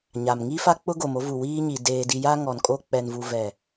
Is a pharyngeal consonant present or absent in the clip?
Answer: absent